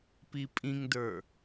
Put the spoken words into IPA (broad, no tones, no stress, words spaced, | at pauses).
pipʼĩŋdə˞